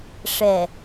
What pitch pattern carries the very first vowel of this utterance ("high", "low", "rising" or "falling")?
low